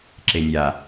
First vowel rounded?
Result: no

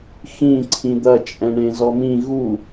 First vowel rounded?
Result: no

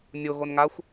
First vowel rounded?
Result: yes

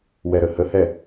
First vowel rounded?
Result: no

